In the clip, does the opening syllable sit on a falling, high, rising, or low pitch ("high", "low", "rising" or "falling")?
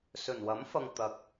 low